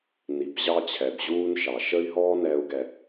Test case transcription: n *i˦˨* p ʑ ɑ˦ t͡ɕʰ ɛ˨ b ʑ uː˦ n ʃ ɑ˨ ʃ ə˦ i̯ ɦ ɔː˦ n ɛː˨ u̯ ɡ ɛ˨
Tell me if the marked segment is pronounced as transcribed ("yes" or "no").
no